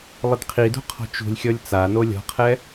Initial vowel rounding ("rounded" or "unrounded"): unrounded